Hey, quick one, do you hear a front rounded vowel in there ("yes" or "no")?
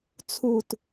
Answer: no